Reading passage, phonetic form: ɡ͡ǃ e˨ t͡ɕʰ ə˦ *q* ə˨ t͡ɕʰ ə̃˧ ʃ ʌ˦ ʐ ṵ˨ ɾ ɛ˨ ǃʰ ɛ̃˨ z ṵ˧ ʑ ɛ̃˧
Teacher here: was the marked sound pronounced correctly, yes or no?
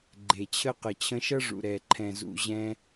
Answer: yes